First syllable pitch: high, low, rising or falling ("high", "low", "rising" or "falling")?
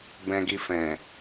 low